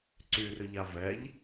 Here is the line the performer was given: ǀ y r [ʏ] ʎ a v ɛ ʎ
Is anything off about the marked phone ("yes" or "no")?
no